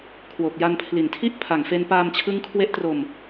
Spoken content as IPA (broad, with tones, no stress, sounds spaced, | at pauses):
kʰ w o˨˩ k̚ j a˧ n pʰ l i˨˩ n tʰ i˥˩ ʔ pʰ a˨˩ ŋ f e˧ n p aː˧ m t͡ɕʰ ɯ˦˥ ŋ kʰ w e˦˥ ʔ t r o˧ m